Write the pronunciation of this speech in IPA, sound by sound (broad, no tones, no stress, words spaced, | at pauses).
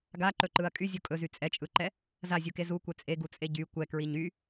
ɡaǃɵǃɯɐ̯ kʼyzʲu kʼɵzy t͡sʼɛt͡ʃʼɯǃɛ | zazʲuke zukʷɛ t͡sʼeɡut͡sʼe ɟy kʷɛkɹiɲ y